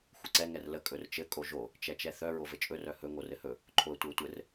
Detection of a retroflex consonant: absent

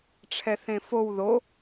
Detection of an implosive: absent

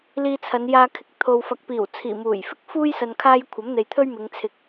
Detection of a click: absent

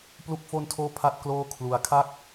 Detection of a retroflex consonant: absent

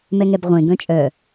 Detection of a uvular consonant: present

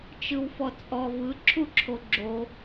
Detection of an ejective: present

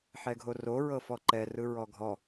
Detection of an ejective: absent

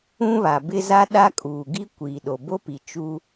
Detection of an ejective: present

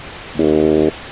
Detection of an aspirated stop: absent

